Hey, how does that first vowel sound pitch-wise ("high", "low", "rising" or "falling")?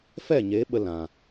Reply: falling